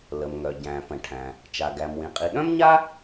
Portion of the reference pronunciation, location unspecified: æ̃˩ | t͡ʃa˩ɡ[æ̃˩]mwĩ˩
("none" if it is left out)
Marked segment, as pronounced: æ˩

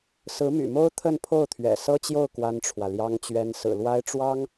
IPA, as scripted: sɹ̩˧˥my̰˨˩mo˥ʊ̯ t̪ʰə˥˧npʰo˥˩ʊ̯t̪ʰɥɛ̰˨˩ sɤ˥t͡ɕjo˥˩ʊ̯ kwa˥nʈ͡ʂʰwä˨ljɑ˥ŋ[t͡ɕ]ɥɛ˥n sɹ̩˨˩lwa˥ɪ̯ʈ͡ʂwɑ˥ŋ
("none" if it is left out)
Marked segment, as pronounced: t͡ɕ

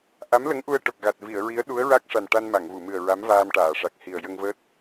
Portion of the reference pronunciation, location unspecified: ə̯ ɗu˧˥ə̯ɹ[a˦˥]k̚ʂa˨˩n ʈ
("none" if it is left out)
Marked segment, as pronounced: a˦˥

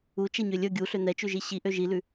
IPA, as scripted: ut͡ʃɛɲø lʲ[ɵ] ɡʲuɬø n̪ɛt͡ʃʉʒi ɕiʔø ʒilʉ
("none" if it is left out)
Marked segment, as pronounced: ɵ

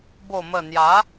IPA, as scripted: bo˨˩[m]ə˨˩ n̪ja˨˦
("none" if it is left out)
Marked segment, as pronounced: m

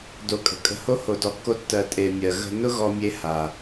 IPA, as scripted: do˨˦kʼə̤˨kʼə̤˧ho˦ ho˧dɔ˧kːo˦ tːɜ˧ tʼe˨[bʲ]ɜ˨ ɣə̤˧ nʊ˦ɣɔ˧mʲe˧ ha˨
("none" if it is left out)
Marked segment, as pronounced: mʲ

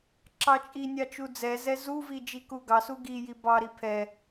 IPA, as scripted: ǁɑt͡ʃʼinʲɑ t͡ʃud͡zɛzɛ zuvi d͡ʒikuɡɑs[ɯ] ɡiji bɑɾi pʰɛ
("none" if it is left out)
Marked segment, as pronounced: u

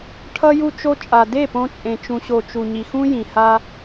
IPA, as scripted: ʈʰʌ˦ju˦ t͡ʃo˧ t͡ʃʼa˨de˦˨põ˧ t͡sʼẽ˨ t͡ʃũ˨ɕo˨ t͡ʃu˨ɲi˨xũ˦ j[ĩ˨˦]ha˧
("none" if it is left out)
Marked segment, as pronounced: ĩ˨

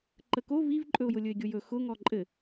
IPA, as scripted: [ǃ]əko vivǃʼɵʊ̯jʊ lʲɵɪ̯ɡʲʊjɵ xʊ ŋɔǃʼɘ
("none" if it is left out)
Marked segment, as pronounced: ǃ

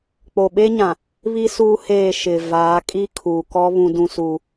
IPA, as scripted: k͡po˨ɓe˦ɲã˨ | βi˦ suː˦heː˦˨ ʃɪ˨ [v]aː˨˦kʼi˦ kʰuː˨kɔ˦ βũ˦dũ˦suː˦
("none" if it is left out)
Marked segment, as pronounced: v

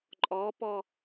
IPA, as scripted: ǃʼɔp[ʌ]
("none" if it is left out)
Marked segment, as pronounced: ɔ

